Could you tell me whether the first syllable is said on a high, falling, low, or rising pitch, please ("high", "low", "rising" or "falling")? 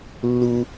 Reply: high